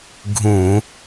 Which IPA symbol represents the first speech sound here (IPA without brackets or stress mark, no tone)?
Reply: ɡʱ